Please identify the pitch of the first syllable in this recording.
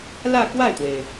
falling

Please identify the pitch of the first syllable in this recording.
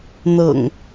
low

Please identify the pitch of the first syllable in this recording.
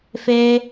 high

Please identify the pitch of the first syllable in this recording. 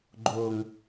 low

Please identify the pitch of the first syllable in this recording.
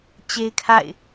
high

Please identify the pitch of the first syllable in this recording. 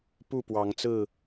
falling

